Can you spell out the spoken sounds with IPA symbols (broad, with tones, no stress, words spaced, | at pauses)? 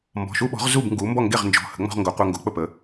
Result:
mbɔ̤˩˧˩ʃu˦ɓɔ̤˩˥ʁ zu˥˩bŋɡu˩˥ mbɔ˥˩ŋɡe˥˩ʁ nd͡ʒɔ̤˩˧˩ hə̤˩˥ŋ͡mɔ̤˦ʁ ŋɡo˩˥qʷe˦ ŋɡo˩˥k͡pə˥˩pə˩˥